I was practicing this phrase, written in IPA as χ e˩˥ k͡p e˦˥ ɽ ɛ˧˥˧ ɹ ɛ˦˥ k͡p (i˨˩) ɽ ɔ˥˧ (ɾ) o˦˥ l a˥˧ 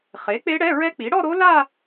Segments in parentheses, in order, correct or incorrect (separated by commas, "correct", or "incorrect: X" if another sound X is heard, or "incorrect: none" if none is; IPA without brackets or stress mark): incorrect: i˩˥, correct